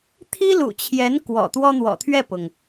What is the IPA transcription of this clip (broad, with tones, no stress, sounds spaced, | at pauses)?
t̪ʰ i˥ l ṵ˨˩ t͡ɕʰ j ɛ˧˥ n k w ɔ̰˨˩ t̪ w ɔ˥ n̪ w ɔ̰˨˩ t̪ʰ ɥ ɛ˥˩ p ʊ˩ ŋ